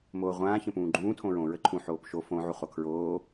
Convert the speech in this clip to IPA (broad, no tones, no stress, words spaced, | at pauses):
moːʁʷãː çə̃pũːɡ͡ǃũː tʰõɹõ ɹəǃʰũ ħoːpʃo fõ ʕuχokʰɹoː